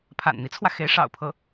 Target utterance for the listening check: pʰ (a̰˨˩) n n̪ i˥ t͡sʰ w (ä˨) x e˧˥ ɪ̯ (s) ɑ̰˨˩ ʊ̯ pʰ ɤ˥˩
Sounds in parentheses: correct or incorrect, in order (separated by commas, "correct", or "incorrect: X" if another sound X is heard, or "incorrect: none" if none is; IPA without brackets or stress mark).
correct, correct, incorrect: ʂ